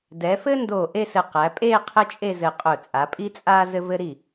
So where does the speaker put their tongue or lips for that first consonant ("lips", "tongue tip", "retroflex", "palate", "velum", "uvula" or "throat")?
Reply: tongue tip